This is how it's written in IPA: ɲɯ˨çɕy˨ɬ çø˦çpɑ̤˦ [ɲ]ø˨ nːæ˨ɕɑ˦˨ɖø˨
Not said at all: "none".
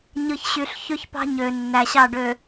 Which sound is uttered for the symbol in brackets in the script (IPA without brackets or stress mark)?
ɲ